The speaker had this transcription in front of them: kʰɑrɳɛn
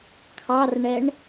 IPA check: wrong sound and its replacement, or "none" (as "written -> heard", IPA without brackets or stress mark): n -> ɳ